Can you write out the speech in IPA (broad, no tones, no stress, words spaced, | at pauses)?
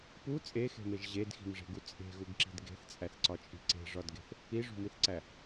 pu t͡sʼexe̤meʒ ʑedxi̤mʐe̤ɡu t͡sʼe̤ɣuɡǁi̤d ɡe̤θt͡sʼæθǀɒt͡ʃʼi̤ ǀe̤ʐɒdɡe̤θ | iʐṳmiθǀæ